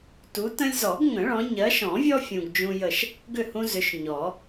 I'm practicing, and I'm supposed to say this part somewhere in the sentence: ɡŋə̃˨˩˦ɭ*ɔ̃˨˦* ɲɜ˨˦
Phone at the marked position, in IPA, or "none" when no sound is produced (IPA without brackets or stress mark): ɔ̃˨˦